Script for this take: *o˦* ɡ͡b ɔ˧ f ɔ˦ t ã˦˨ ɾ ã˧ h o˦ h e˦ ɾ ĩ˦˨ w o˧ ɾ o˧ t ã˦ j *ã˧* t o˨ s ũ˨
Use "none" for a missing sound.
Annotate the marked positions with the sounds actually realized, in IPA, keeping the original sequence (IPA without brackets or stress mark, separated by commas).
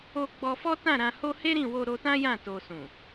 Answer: o˧, ã˦˨